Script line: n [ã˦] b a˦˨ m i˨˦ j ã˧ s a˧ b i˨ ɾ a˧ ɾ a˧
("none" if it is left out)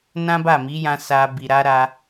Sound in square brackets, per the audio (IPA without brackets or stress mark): ã˦